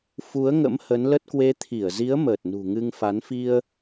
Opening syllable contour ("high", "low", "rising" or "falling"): rising